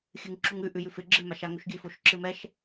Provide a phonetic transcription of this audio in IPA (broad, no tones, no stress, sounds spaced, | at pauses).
xʲ ɨ ŋ ǁ u ŋ ʉ ʔ ʉ j ʉ f ɪ ɡ͡ǁ ɨ m a ʃ a ŋ o ʃ ɡʲ ʉ f o ʃ ǁ ɨ m ɛ ʃ